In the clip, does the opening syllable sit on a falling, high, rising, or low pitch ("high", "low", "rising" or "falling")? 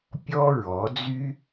high